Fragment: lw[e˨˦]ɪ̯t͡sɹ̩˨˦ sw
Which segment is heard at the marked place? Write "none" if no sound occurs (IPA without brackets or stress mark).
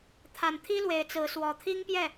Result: e˨˦